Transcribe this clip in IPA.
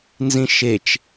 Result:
nzĩʃet͡ʃ

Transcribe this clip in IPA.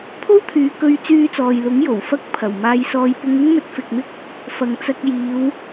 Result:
pʰo˥wt̪ʰyː˨˧ kɵ˧ɥt͡syː˧t͡sɔː˨jlʊ˨˥ŋ jo˨˩wfɐ˥k̚ pʰɐ˨˩w maː˧jsɔː˧j pʊ˧ŋɪ˥ŋ mɵ˧t̚fɪ˨k̚mɪ˥k̚ | fɐ˨ŋt͡sɐ˧k̚ jiː˨˧w

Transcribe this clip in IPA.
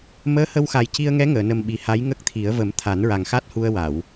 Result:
məː˧˥hə˧wxa˨˩j ci˧ə̯ŋɛ˧˥ŋəː˨˩˨nə˨˩m ɓi˨˩ha˧˥jŋə˦˥k̚t̪ʰi˨˩˦ə̯ və˨˩˦m t̪ʰa˨˩˦nɹa˨˩ŋxa˦˥t̚hu˧ə̯ wa˨˩˨w

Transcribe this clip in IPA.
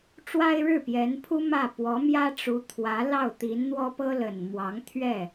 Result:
ʈ͡ʂwa˥ɪ̯ɻɻ̩˥˩pjɛ˧˥npʰu˥ mä˥˩ pwɔ˧˥mjä˥ʈ͡ʂu˧˥ t̪ʰwä˧˥lɑ˥˩ʊ̯t̪i˧˥n n̪wɔ˥pɤ˥ lə˨˩n mwɑ˧˥ŋt̪ʰɥɛ˥˩

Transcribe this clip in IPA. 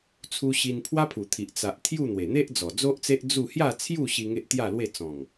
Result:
t͡sʰu˧ɕi˧n pʰwa˦pʰu˨˩t̪ʰi˨ʔ t͡sa˨ʔ t̪ʰju˥˧ n̪we˨˩n̪e˦ʔ d͡zɔ˨˩ d͡zo˦ʔt͡se˦ʔ d͡zu˥˧ hja˥˧t͡sʰju˥˧ɕi˧ ŋe˦ʔt̪ja˥˧lwe˥˧ t͡sɔ̃˨˩ŋ

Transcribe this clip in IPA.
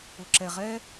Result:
ʊ˨ǁɛ˨ ʁɛ˦

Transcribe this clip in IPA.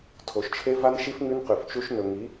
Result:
tʰo˨ʃt͡ʃʰe˦ va˦nʃi˦f ŋʉ˦nqʉ˨ft͡ʃu˦ʃ nɵ˨ŋi˨˦

